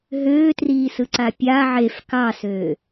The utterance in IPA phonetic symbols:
ɦ øː t r iː s ɯ ǀ a pʲ a ʕ e f k ɑ s øː

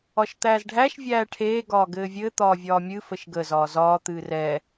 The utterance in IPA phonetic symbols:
ɒ ʃ t̪ æː z ɖʱ æ ʃ vʲ æː ʈʰ eː ɡ ɒː ɡ ɘː vʲ ɘ t̪ ɒː vʲ ɒː mʲ ɨ f ə ʃ ɡ ə z ɒː z ɒː t̪ ɨː r ɛ

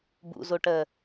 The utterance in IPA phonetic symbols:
b ṵ z o ʈ ɜ

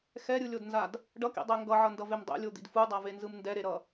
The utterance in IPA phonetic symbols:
x ɛ ɾʲ ɯ lʲ o d n z a d | ɖ ʌ k ḭ dˤ ɛ ŋ ɡ ʌ ʕ ʌ n d ʌ v e m dˤ ḛ lʲ o d̪ ḭ d f u dˤ a v e n z ɯ m n d ɛ ɾ e ɾ ʌ

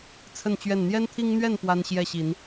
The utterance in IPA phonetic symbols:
t͡sʰ ə˥˨ n t͡ɕ ɥ ɛ˥˨ n n̪ j ɛ˦ n t̪ʰ i˦ ŋ n̪ ɥ ɛ˥˨ n p w a˦ n ɕ j ɛ˥˨ ɕ i˨˦ n

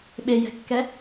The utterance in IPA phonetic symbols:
ɓ e j ɛ̤ kː ɛ

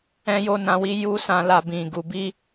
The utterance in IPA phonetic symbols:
ɛ̃˦ j o˦ n ã˧ w i˦ j u˦ s ã˧ l a˧ b ĩ˨ ɡ u˨ b i˧

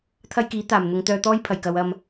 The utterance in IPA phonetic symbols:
t̪ʰ ɐ˥ j k iː˨˥ t̪ aː˨˩ m n̪ ʊ˨˧ ŋ t̪ œː˧ t̪ ɔː˥ j pʰ ɐ˨˩ j k ɐ˨ w ɐ˨ m

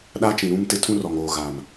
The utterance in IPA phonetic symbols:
ɗ a˦ t͡ʃ ĩ˨ ɾ ũ˦ m t ɪ˦ tʰ ũ˦ r ɔ˨ ŋ oː˨ ɣ aː˨ m

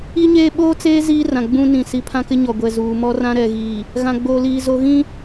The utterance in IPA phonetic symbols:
i˦ ɲ eː˦ ɓ oː˦ t͡s eː˦ z iː˦ r ã˨ ɡ͡b ũ˦ n ĩ˨ s i˨ pʰ ã˦ k ɪ˦ ɲ ɔ˨ ɡʷ ɛ˨ z uː˨ m ɔ˦ r ã˦ ɾ ɛ˨ ɣ iː˨ | ɣ ã˨ ɡ͡b oː˨ l iː˨ z o˨ ɣ ĩ˦

